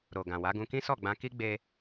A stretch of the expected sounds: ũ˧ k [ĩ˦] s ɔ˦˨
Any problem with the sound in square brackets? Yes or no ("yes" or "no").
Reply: no